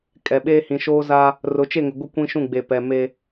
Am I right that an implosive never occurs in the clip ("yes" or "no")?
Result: no